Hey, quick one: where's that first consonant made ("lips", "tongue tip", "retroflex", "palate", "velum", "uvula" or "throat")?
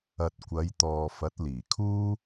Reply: tongue tip